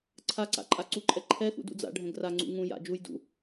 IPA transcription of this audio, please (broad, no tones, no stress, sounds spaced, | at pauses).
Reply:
ǀʰ a ǀ a̰ ǃʼ a ǀ u ǃʼ ɛ ǃʰ ɛ x ṵ d ṵ d͡z a̰ ɖʱ ɛ̃ ɡ r a ŋ͡ǀ ṵ ŋ ũ j a̰ d͡ʒ u j d ṵ